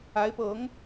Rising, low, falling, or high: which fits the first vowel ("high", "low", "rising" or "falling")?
rising